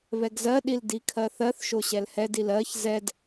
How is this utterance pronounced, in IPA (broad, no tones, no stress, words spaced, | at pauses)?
βɛɡzɜɗil dikʰɜθɜθʃo ɕɛlhɛdil ɜç zɛd